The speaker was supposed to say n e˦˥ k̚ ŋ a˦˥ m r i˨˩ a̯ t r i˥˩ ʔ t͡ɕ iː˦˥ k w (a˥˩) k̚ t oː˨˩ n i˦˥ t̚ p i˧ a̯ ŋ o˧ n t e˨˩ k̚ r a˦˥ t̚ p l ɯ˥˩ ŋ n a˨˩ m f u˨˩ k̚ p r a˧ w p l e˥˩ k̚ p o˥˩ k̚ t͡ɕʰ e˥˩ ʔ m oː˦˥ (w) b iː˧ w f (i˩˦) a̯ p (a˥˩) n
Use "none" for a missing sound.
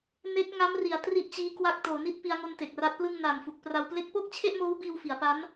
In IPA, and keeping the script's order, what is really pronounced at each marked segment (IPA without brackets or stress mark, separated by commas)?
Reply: a˥˩, w, i˩˦, a˦˥